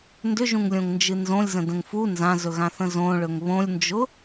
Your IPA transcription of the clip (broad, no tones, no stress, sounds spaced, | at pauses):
n d ʏ ʒ ũ ŋ lʲ õ ŋ n d͡ʒ ɨ n z õ lʲ z ə̃ d ə̃ ŋ f u n z ã z ɵ ɣ ã θ ə̃ z õ ɭ ɵ ŋ β õ lʲ n d͡ʒ ʊ